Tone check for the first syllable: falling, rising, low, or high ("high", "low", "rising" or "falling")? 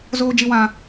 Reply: high